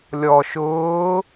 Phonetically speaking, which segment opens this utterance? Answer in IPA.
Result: lʲ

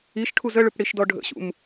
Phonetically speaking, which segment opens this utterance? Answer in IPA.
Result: i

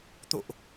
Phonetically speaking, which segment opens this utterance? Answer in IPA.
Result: t̪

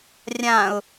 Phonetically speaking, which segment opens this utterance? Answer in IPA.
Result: rʲ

